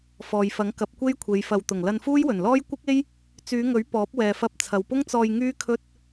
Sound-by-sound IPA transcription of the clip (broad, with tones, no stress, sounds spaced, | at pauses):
f ɔː˨ j f ɐ˨˥ ŋ k ɐ˨˥ p̚ kʷ e˥ j kʷʰ e˨˧ j f ɐ˨ w t̪ ʊ˨˩ ŋ l ɐ˧ n f uː˥ j w ɵ˨˩ n l ɔː˥ j kʷ ɪ˥ k̚ e˥ j | t͡s yː˨˧ ŋ ɵ˨˥ ɥ p ɔː˨˥ p̚ w ɛː˨ f ɐ˧ p̚ t͡sʰ ɐ˨ w p ʊ˥ ŋ t͡s ɔː˧ j ŋ yː˥ kʰ ɵ˥ t̚